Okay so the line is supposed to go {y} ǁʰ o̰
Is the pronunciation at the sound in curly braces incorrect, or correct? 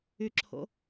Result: correct